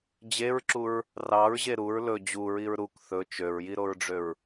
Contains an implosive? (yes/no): no